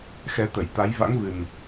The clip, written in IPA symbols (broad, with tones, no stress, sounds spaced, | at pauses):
x ɛ˨˦ t̪ ə˧˩ j t̪ a˨˦ j v a̰˧˥ ŋ v ɨ˨˩ n